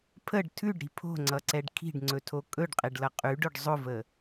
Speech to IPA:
pʰəɖ tʰʉɖɾi̤ pʰo̤ŋ͡ǀʌǀɛɖ kʰi̤ɖŋ͡ǀɵtʰo kʼɵɖqʼeɖlʌ qʼʉɖʊɖ zˤʊvə

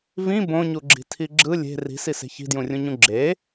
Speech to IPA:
vĩ bõɲuɡ͡ǁi̤tʰi ɡ͡ǁɯ lʲe̤ ri̤sise̤ çi̤djũrʲũɲũ ɡ͡ǁe

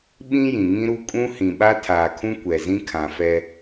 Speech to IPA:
ɓĩ˦ jĩ˨ŋĩ˦ɾu˦ kʼũ˦hĩ˨ɓa˦ tʰaː˨kʰũ˦ kʷɛ˨zĩ˦ kʰã˨fɛ˦

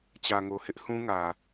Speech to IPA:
t͡ɕä˨ŋo˨hɪ˦ʔ hũ˦ŋä˨

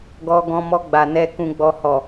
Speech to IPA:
ɡɔ˧ɡɔ̃˧mɔ˧ ɡ͡ba˨nɛ˧ kũ˨ɡ͡bɔ˨hɔ˨

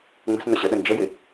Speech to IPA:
ŋ͡mə̤s nʊɕəɗə nd͡ʒəjɪ

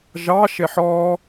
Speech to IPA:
ʒɑʃeħ ɔ

